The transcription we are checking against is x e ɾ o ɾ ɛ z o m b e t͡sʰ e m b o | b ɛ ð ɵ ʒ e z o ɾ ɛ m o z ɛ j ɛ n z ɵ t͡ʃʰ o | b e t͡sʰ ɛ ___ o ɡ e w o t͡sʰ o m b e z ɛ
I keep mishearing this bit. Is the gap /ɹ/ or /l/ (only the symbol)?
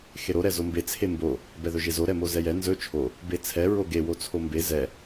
ɹ